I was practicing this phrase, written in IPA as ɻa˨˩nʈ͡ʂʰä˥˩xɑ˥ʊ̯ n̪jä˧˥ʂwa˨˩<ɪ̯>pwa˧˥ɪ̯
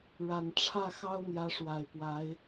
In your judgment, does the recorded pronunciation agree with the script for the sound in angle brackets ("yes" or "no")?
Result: yes